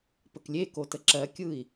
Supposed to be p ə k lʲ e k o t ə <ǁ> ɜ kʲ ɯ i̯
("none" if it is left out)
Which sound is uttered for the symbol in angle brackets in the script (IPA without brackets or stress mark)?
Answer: ǁ